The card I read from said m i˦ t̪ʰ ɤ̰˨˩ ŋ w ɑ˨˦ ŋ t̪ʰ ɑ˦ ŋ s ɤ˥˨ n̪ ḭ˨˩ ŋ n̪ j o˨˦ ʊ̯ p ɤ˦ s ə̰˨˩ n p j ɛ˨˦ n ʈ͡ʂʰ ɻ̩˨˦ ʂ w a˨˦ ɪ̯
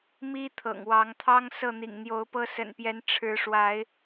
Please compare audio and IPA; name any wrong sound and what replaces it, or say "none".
none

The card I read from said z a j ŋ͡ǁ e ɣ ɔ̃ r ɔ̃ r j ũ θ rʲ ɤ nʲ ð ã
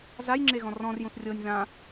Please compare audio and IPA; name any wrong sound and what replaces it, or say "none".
none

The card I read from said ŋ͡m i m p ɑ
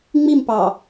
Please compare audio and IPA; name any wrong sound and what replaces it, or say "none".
none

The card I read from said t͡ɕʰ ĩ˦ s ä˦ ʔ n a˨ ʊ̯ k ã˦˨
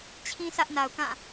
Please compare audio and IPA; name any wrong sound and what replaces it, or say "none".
none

